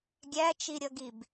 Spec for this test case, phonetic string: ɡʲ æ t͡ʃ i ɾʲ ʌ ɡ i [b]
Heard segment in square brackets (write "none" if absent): b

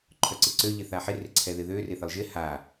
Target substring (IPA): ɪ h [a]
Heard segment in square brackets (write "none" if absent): a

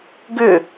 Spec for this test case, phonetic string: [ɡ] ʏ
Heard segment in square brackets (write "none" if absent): ɡ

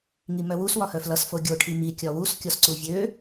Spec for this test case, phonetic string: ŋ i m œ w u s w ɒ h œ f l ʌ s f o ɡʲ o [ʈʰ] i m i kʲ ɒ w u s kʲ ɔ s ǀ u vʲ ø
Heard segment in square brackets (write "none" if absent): ʈʰ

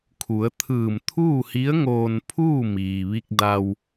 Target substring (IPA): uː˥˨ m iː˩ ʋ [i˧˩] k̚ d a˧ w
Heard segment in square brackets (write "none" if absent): i˧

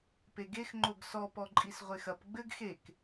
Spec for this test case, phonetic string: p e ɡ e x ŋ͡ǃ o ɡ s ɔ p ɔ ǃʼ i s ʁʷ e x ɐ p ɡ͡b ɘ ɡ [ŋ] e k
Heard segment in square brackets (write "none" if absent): x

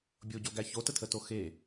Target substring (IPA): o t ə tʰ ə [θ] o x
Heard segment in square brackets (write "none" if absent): t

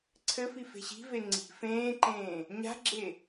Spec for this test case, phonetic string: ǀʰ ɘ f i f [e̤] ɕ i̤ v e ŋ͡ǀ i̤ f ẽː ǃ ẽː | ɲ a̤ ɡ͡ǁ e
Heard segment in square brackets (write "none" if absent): e̤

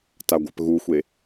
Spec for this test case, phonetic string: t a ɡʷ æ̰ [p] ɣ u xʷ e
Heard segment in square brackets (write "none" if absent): p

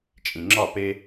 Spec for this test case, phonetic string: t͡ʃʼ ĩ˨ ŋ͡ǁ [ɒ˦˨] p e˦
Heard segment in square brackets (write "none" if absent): ɒ˦˨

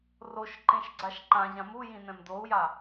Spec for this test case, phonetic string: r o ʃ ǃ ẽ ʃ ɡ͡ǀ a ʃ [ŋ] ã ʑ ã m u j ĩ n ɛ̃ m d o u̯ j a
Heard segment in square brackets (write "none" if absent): ǃ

